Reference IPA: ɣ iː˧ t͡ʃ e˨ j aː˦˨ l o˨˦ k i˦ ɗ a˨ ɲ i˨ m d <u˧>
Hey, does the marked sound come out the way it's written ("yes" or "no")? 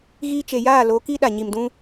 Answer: no